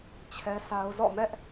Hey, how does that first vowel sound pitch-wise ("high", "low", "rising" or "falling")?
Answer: high